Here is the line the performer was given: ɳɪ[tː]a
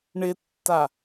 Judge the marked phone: correct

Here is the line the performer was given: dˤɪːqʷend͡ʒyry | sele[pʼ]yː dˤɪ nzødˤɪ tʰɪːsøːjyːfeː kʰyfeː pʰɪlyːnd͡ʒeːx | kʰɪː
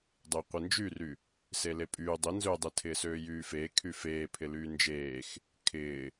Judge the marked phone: correct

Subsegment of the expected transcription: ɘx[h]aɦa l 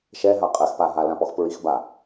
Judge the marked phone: incorrect: p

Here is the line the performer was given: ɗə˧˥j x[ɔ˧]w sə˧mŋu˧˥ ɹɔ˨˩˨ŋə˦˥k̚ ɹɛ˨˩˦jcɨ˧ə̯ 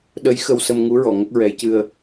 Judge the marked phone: incorrect: ə˧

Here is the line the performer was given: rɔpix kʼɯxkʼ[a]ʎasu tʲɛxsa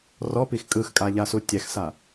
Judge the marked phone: correct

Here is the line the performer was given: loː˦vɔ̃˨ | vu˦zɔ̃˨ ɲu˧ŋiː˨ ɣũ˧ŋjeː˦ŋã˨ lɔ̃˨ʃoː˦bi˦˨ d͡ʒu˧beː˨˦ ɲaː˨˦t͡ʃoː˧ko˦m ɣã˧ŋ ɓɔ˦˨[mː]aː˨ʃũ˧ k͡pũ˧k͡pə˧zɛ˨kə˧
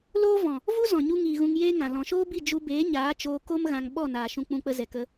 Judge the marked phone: incorrect: n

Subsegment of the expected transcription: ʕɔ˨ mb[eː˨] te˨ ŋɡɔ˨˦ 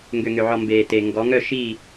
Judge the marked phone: correct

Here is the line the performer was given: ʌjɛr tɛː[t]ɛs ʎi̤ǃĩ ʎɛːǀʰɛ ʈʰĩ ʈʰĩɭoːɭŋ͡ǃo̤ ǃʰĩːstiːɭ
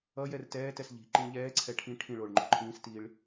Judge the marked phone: correct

